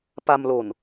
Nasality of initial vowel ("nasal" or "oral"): oral